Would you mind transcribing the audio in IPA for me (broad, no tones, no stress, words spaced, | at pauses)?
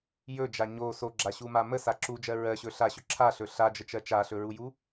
jɵd͡ʒa ɲo soɡ͡ǁaɕuma məsa ǁud͡ʒɜ ɹɜɕɵ ɬaɕɵ ǁʰaɬɵ ɬad͡ʒət͡ʃɜ t͡ʃaɬɵɹuju